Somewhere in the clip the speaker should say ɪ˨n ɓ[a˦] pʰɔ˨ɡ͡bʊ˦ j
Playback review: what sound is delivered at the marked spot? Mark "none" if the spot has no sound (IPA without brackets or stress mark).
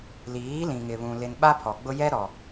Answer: a˦